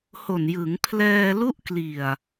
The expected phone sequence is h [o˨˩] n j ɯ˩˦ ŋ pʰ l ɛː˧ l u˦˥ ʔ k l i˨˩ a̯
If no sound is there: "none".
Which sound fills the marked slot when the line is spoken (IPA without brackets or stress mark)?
o˨˩